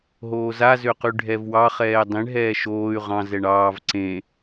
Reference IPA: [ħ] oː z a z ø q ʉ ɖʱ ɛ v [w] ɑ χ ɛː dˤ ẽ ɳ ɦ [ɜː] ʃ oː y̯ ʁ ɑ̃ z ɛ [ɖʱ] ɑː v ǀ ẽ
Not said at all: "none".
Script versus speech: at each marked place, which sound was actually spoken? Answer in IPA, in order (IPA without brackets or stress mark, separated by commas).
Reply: ɦ, w, ɛː, ɳ